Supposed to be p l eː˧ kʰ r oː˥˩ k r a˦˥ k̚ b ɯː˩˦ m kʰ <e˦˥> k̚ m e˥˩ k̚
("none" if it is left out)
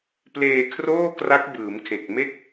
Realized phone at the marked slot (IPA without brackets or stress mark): e˨˩